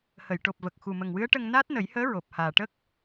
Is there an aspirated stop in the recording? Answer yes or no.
no